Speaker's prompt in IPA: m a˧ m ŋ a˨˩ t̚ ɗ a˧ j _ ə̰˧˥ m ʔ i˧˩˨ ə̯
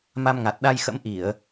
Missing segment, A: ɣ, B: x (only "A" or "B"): B